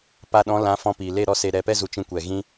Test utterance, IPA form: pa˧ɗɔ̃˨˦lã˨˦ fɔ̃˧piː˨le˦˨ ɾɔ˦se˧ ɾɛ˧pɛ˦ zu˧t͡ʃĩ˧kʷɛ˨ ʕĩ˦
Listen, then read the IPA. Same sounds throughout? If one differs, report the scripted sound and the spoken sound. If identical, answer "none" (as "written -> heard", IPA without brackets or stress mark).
ʕ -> ɣ